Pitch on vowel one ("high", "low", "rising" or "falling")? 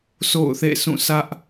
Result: falling